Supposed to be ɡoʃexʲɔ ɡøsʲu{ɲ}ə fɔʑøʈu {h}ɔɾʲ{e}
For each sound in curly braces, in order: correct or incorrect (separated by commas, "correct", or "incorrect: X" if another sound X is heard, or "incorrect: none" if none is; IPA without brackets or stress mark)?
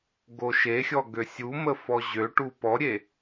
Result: incorrect: m, incorrect: p, correct